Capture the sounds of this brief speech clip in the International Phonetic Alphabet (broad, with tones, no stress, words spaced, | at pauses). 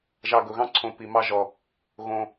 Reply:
ʒɑ˨˩ɡʊ˨˩ɣɑ̃˧ǀʰõ˨˩ pi˨˩mɑ˧ʒɔ˨˩ | ɣõ˨˩